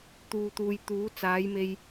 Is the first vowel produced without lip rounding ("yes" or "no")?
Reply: no